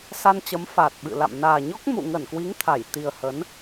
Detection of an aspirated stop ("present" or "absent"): present